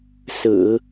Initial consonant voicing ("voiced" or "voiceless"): voiceless